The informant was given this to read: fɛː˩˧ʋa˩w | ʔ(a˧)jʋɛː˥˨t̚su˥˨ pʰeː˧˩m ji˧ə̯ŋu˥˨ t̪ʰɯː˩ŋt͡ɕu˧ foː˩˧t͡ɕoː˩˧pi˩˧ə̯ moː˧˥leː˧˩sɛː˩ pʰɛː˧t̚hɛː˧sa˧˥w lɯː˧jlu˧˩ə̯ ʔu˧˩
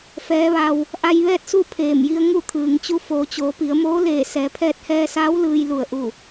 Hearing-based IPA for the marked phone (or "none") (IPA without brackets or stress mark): a˧